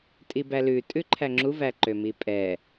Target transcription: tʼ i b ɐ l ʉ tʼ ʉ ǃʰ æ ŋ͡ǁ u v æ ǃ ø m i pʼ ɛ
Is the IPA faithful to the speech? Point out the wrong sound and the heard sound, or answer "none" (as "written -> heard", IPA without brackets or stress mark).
ɐ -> æ